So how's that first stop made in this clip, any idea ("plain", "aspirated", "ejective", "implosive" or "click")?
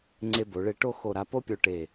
click